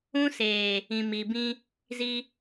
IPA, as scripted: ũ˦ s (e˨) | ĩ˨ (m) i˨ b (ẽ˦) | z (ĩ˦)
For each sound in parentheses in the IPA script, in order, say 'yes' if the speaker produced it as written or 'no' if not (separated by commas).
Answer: no, yes, no, no